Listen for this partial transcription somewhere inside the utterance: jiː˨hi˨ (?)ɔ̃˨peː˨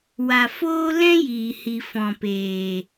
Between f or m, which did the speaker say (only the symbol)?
f